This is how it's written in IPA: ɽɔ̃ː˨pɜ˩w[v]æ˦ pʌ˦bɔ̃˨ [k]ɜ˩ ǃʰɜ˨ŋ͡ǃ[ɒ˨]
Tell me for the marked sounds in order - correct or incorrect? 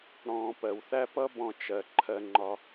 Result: incorrect: θ, incorrect: t͡ʃ, correct

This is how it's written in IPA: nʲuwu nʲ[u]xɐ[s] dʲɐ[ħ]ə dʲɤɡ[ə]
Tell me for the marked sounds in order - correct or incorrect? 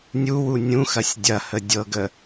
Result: incorrect: ũ, incorrect: sʲ, incorrect: h, correct

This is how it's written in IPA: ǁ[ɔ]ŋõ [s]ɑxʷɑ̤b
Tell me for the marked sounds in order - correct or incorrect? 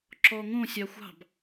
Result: correct, incorrect: sʲ

